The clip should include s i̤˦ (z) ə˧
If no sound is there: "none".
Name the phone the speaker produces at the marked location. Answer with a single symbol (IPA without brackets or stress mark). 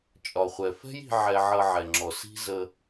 z